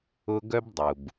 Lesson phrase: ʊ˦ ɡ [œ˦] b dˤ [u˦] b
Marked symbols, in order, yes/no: yes, no

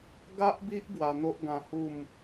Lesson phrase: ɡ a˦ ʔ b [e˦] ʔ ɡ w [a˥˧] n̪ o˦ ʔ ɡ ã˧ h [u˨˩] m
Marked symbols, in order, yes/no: no, no, no

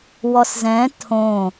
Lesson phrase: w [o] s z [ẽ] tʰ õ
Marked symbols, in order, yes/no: no, no

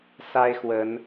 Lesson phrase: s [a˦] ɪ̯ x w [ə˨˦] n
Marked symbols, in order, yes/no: yes, yes

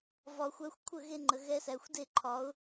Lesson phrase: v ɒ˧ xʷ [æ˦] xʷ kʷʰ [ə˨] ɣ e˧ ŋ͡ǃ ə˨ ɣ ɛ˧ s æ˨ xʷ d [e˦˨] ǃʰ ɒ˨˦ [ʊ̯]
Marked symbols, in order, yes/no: yes, no, yes, yes

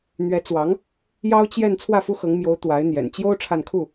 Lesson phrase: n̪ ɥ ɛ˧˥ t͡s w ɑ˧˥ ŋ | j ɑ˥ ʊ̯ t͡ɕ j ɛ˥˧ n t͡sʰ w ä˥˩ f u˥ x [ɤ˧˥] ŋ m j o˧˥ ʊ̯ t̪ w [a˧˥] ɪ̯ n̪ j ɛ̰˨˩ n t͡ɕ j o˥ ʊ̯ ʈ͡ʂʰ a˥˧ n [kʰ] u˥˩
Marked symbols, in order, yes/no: yes, yes, yes

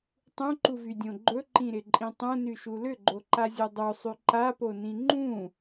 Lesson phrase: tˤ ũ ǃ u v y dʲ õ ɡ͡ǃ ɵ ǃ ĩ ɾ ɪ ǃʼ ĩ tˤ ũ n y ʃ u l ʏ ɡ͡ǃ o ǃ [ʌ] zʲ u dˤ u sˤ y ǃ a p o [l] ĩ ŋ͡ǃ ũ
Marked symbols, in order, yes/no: no, no

